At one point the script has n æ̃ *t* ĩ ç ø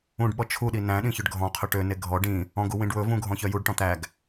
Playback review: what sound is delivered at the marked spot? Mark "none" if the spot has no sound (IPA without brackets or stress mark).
ɗ